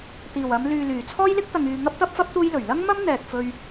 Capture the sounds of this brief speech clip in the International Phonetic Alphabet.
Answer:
t̪ iː˨˩ w ɐ˨˧ m l yː˨ l yː˨˩ t͡sʰ ɔː˥ j l ɪ˥ k̚ t̪ ɐ˨ ŋ yː˨ ŋ ɐ˥ p̚ t̪ ɐ˥ p̚ f ɐ˥ p̚ t̪ uː˥ j l ɵ˨˩ ɥ l ɐ˥ ŋ m ɐ˥ m n̪ ɛː˨ k̚ f ɵ˧ ɥ

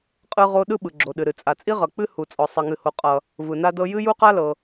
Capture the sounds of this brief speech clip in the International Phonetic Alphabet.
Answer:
qʼ ɯ˥ ʁ o˥ ɗ ɯ˥ ɓ ɯ˩ ɡ͡ǁ o˩ ɗ ɨ˩ ɾ ɨ˩ t͡sʼ a˩ t͡sʼ i˥ ʁ ʌ˩ k͡p ɨ˥ h u˩ t͡sʼ ɔ˩ sˤ ʌ˩ ŋ ɨ˩ h o˩ qʼ ʌ˩ | v ɯ˩ n a˥ d ɤ˥ j ɨ˥ j u˥ q a˥ l ɤ˩

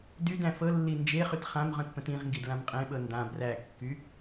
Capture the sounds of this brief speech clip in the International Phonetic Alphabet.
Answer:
d y d æ̃ f ɤ lː i n d͡ʒ e χ y t χ ã m ʁ œ̃ t p ə̃ t ĩ ʁ ŋ ɡ i d l ã m qʼ ẽ ɓ ɤ n d ã b r æ kː y

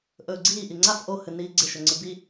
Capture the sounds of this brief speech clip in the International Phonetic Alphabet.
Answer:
ʔ ɵː ɡ͡ǀ iː ʔ i ŋ͡ǀ a f ʔ o h ɨ n iː ɡ͡ǀ e ʃ ɵ ŋ͡ǀ ɨ b i

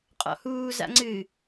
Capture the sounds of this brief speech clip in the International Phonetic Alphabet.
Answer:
qʼ ɔ̰ h uː z a̰ ŋ͡ǀ ɨ

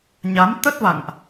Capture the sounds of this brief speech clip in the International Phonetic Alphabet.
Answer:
ɲ a˨˦ m t̪ ə˦˥ t̚ v a̰˧˨ ŋ ʔ

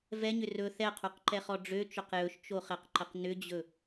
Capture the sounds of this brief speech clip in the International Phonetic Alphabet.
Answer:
v ɛ ɲ ʏ r ɵ θ ɛ qʰ o q ǃ ɛ χ ɔ ɖ͡ʐ ø t͡ʃ ɵ q j ɵ ʃ t͡ʃ o χ ɛ q ǃ ə q n ʏ d͡ʑ ɵ

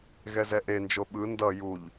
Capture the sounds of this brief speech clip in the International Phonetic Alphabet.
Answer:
ɣ ɛ z ɛ ʔ e n d͡ʒ o ɓ ɯ n d ʌ j u ʎ

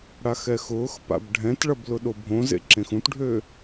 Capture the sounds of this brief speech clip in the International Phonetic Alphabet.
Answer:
ɽ a x ɛ x ʊː x p a̰ b ɖʱ ɛ̃ t ɭ ɐ b l ʊ ɗ o bʱ õ z ḛ ǁ ẽ x ũ t ɖʱ øː

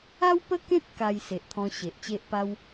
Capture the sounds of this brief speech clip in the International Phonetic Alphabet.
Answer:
a˦ w p ə˦ k ẽ˦ t̚ k a˧ j s e˨ ʔ t̪ʰ ɔ̃˧ ɕ e˨ ʔ t͡ɕ e˦ ʔ p a˦ w

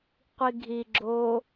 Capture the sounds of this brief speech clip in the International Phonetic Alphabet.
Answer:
qʷ i ɡʱ i ɡ͡ǁ o

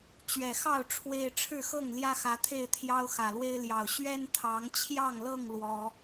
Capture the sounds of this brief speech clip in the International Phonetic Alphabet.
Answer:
t͡ɕ ɥ ɛ˨˩ x ɑ˥˨ ʊ̯ ʈ͡ʂʰ w e˦ ɪ̯ ʈ͡ʂʰ ɻ̩˥˨ x ɤ˥˨ ŋ l j ä˦ x ä˨˦ t̪ʰ e˥˨ ɪ̯ t̪ʰ j ɑ˦ ʊ̯ x ä˨˩ l w e˦ ɪ̯ l j ɑ˨˩ ʊ̯ ɕ ɥ ɛ˦ n t̪ʰ ɑ˨˦ ŋ t͡ɕʰ j ɑ˥˨ ŋ l ɤ˥˨ ŋ l w ɔ˨˦

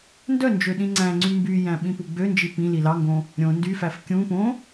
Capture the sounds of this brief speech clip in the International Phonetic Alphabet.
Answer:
n d œ n d͡ʒ ø ɗ ĩ ŋ͡ǀ æ̃ ŋ͡ǀ y m b y j æ̃ ɓ ĩ p u ɡ͡b ø n d͡ʒ i p ĩ l i l ɑ ŋ ɡ õ | ɾʲ õ n d y f æ f kʲ ũ p õ

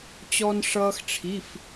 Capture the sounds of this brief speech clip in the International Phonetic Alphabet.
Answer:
t͡ɕ ɔ˥ n ʂ ʌː˥ x ʈ͡ʂʰ i˧˥˧ f

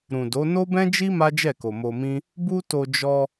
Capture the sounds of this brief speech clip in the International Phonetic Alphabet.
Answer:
ɾ ũ˨ d o˨˦ n o˦ b ɛ̃˦ d͡ʒ i˦ m a˦ d͡ʒ ɛ˦˨ k o˨ m o˧ m ĩ˦ | b u˦ t o˧ d͡ʒ ɔ˧

